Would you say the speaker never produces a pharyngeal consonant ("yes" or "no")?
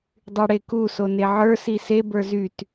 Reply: no